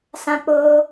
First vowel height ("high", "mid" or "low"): low